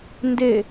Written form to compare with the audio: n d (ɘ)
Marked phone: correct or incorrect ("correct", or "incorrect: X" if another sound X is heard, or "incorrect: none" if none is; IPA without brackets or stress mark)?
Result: incorrect: e